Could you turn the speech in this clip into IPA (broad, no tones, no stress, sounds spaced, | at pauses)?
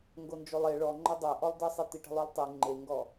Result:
ŋ ɡ o n d͡ʒ o lˠ e ɭ ɔ ŋ͡ǃ ɐ dˤ ɜ ʔ ɔ lˠ d ɜ sˤ e t̪ i ʈ ə̤ lˠ o lˠ tˤ i ŋ͡ǃ e ŋ ɡ ɔ